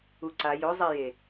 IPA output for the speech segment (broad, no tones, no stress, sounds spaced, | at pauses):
u ǀ a j o zˤ ɛ j e